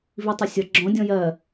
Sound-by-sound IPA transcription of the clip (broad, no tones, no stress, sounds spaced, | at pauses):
v i tˤ ʊ sʲ ʌ ɡ͡ǁ ɔ̃ dʲ ɔ̃ j ɜ